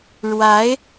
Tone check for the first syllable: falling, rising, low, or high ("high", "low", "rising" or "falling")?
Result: rising